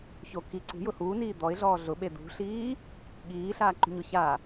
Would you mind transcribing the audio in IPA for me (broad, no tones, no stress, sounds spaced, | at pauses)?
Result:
ç o k i ǀ ṳ j ʊ h uː n iː d̪ ɔ ɪ̯ ɮ ɔː ɮ ʊ ɓ e d̪ ṳ ɬ iː | ɠ iː ɬ aː ǃ ṳ ɲ ʊ ç a